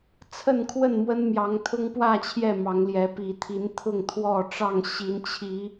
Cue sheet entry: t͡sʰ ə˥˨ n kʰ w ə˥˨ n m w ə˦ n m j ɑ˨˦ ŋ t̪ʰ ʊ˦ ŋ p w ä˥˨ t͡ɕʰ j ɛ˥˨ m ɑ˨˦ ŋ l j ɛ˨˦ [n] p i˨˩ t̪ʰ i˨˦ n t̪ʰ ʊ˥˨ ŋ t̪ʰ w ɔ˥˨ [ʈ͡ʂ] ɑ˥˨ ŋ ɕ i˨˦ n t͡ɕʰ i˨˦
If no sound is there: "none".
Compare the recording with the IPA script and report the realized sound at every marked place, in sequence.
none, ʈ͡ʂ

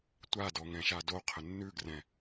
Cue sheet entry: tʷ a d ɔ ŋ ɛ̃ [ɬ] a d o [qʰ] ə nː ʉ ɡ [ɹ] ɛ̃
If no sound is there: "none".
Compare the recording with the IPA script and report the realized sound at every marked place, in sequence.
ʃ, qʰ, r

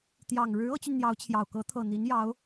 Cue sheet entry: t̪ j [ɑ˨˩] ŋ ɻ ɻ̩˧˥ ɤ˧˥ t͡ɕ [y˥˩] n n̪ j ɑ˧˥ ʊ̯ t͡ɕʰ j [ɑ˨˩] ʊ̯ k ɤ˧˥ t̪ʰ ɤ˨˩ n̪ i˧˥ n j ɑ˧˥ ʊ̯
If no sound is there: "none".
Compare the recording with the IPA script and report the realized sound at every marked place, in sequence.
ɑ˨˩, y˧, ɑ˨˩

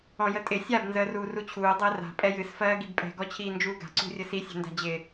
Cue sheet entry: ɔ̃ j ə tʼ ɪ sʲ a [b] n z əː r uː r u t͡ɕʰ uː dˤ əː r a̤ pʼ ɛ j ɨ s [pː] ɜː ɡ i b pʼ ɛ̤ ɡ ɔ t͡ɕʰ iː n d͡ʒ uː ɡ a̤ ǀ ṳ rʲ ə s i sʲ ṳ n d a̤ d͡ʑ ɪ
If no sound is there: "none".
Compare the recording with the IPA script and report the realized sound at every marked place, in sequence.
b, f

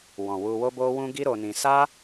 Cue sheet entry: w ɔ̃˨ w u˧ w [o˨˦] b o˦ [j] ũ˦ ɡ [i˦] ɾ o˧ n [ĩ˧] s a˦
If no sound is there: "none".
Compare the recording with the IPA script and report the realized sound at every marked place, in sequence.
o˦, w, i˦, ĩ˧

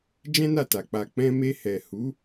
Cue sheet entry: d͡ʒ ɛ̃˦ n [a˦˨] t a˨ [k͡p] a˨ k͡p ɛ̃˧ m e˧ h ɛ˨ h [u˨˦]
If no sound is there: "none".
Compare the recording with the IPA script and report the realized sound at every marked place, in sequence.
a˦˨, k͡p, u˨˦

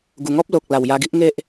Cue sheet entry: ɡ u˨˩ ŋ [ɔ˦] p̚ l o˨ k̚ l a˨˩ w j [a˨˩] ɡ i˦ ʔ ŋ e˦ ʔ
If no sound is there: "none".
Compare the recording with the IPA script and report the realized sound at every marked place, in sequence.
ɔ˦, a˧

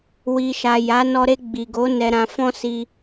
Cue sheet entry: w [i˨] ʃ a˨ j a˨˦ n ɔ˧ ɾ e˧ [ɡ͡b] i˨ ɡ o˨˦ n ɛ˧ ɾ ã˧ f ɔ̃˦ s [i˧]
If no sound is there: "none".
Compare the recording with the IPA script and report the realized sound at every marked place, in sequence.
i˨, ɡ͡b, i˧

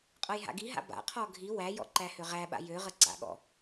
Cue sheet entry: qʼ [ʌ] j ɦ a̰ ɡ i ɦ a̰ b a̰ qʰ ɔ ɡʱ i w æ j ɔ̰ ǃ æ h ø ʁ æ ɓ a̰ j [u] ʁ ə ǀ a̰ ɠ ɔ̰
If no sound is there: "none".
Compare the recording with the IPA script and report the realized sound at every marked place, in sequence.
ʌ, ø

